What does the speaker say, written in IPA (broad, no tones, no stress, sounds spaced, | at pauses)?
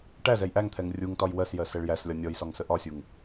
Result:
ʈ æ z ɛ j ʔ æ ŋ t̪ʰ ɛ ŋ rʲ u ŋ t ɒ j w ɜ s j ɜ s ɛ ɭ j æ s lʲ ɒ nʲ ɔ j s ɒ ŋ s ə ʔ ɒ sʲ u ŋ